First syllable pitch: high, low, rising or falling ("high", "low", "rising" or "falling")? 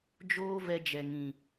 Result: high